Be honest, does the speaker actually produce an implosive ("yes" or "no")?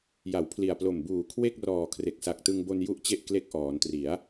no